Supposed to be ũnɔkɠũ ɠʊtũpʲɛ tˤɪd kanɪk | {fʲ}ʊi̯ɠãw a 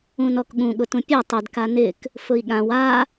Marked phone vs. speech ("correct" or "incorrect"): incorrect